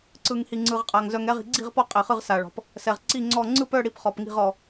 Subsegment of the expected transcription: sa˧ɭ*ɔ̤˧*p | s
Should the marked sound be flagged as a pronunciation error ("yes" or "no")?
no